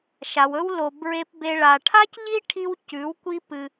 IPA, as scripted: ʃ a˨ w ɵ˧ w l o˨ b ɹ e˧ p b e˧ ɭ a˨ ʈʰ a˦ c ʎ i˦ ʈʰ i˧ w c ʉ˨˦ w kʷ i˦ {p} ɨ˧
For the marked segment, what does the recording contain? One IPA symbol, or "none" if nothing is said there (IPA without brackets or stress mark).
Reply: p